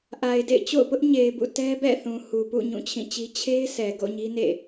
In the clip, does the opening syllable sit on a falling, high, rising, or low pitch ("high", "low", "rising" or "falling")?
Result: low